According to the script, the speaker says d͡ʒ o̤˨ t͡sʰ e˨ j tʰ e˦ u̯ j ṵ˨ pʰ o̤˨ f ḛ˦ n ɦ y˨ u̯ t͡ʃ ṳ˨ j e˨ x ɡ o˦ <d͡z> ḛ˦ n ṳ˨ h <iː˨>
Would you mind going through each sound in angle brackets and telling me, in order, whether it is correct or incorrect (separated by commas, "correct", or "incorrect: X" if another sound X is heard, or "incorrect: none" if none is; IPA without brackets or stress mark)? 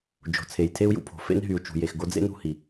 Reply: correct, incorrect: i˨